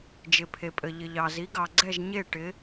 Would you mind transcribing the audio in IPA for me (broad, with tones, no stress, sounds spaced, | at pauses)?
d͡ʒ ɪ˩ pʰ e˩ pʼ ɘ˩ ʎ ɪ˩ ʎ ɑ˩ z i˩˥ ɡ ɑ˩ ɡ͡ǀ ɛ˥˩ ʒ ɲ e˥˩ ʈ ɪ˩˥